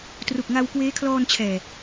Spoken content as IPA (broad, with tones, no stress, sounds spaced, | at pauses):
t r u˨˩ k̚ ŋ a˧ w k w eː˦˥ kʰ l ɔː˧ n t͡ɕʰ ɛː˨˩